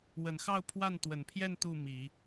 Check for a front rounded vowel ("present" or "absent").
absent